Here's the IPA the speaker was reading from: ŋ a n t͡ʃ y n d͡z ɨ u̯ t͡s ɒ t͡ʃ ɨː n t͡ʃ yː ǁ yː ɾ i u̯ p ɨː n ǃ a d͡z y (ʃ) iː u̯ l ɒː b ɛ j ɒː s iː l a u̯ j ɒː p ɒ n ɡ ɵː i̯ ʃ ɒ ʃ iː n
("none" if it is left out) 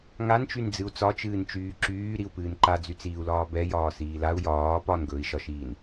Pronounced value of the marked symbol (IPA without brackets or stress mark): t͡s